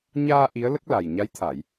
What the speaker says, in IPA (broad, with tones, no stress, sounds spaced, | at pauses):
ɲ aː˧ ʔ i˧˥ ə̯ l ə˦˥ k̚ l a˨˩ j ɲ a˧˥ j t̪ʰ a˨˩˨ j